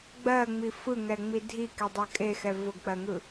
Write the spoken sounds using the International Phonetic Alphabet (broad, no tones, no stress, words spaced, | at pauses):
ɡ͡bɜŋ͡mi fɯŋɛŋ͡mi dʱikedˤɜ kʼexɛ vʊɡk͡pɜŋɯ